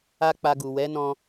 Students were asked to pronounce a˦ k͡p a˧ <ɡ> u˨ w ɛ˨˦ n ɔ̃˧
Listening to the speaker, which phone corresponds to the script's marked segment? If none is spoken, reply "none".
ɡ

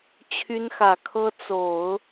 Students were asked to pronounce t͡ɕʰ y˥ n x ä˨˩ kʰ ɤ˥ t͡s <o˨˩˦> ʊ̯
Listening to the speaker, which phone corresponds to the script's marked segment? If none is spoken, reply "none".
o˨˩˦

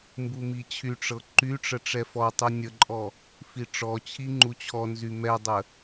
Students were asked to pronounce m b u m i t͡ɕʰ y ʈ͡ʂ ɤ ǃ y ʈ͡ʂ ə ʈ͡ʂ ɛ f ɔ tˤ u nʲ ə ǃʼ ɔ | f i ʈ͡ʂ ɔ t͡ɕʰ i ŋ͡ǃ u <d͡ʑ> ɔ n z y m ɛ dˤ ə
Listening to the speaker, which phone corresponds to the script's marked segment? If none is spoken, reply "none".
t͡ɕʰ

